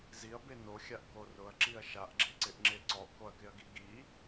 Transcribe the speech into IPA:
z i ɐ̯ b e n o xʲ a ʔ k o r ʊ ɐ̯ ǁ i ɐ̯ ʃ a ʔ ɡ͡ǁ e ǀ ɪ ʔ ŋ͡ǁ e ǀ ɔ ʔ k o ɐ̯ k ɪ ɐ̯ ɡ i ɡ i

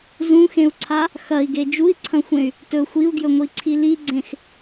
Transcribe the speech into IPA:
z ũ x ẽ u̯ ǀʰ a | x ɐ i̯ ɡ e d͡ʒ u i̯ ǀʰ ɐ̃ xʷ ẽ y̯ | t ɵ xʷ i u̯ ɡ j ɵ ŋʷ i ǀʰ i l i ɡ͡ǀ ẽ x

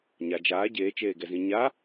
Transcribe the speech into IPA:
ɲ a d͡ʒ aː ɟ eː t͡ʃ eː ɡ ɛ z ĩ ɲ a

